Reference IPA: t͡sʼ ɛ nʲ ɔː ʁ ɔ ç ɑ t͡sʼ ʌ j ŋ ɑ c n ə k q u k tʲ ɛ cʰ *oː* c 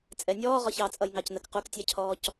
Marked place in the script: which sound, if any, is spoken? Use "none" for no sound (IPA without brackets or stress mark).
ɔː